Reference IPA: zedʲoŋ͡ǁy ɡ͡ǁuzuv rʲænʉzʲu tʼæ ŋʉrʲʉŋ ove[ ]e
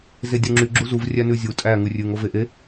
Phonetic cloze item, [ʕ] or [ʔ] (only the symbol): ʔ